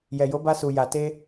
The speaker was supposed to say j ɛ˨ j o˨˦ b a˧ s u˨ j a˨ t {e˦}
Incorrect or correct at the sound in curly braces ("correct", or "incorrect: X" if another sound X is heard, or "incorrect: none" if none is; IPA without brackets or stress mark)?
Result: incorrect: e˧